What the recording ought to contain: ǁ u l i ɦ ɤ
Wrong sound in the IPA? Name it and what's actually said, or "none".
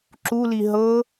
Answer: none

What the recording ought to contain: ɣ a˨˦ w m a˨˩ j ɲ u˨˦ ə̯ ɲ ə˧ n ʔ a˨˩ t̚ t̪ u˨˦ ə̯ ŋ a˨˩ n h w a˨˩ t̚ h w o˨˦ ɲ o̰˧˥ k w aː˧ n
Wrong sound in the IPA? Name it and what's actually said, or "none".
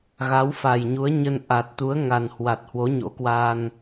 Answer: m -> f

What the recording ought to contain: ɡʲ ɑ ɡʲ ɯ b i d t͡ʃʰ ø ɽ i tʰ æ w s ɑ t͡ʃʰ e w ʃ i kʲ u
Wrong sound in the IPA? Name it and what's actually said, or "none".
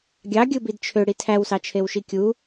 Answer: none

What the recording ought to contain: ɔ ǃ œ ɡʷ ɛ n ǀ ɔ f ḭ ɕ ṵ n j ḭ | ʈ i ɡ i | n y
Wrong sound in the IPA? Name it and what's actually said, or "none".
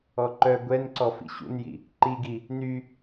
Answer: ʈ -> ǃ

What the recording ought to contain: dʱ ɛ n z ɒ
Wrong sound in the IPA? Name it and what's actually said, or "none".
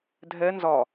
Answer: none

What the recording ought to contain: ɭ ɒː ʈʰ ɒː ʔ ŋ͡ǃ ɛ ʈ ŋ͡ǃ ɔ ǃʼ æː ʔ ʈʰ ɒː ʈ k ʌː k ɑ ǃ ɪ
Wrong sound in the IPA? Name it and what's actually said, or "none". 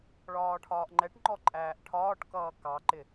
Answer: none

